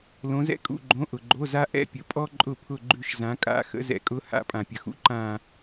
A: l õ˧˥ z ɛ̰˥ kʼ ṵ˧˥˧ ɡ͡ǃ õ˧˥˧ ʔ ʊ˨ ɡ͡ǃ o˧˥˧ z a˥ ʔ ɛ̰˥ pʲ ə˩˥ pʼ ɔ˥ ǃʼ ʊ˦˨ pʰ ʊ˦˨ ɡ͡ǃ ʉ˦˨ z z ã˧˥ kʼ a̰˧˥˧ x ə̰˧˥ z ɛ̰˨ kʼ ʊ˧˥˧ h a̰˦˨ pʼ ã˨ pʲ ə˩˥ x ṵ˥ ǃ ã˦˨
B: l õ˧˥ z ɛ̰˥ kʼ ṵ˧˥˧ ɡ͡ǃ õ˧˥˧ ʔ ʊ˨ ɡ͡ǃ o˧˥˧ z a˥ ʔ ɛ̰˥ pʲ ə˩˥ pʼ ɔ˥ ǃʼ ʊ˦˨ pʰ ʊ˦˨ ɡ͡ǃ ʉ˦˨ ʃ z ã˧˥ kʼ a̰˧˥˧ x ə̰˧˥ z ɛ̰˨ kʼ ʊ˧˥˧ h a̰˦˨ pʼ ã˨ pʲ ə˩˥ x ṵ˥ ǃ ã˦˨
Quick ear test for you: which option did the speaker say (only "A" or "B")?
B